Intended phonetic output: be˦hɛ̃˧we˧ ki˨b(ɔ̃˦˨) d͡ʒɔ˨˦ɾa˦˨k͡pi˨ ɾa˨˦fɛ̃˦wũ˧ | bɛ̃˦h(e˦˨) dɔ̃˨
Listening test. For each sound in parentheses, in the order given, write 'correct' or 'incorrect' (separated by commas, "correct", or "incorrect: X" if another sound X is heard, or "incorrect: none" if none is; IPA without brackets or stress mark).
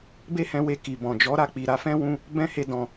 incorrect: ɔ̃˨, correct